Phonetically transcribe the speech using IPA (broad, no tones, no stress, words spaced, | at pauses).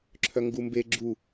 ǁʰœŋɡumbe ɡ͡ǁu